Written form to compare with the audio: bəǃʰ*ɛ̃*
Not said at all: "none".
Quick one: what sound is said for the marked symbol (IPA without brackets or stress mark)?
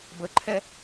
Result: ɛ